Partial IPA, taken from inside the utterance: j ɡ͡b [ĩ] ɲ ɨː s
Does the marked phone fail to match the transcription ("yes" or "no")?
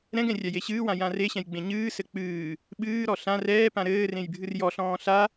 yes